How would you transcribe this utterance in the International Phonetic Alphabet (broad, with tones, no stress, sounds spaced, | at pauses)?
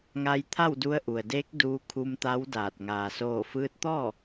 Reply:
ŋ a˧ j t̪ʰ a˥˨ w d u˧ ə̯ ʔ u˩ ə̯ d eː˧˥ k̚ d uː˧ kʰ u˧ m t̪ a˧˥ w d aː˧˩ t̚ ŋ aː˩ s oː˧˩ f ɯː˧ t̚ t̪ ɔː˥˨